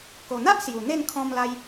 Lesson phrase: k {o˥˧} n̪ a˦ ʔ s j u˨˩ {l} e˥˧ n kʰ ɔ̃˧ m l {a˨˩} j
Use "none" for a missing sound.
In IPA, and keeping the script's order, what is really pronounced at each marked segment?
o˨˩, n̪, a˧

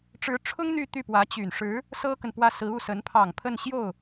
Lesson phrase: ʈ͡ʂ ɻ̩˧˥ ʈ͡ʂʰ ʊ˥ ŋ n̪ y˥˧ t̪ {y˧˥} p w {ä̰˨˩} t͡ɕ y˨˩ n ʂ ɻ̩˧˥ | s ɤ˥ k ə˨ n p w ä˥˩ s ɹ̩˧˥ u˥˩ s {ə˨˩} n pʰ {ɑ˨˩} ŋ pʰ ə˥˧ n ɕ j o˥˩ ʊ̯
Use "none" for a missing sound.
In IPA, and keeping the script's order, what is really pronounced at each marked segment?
y˥˩, ä˧˥, ə˧˥, ɑ˨˩

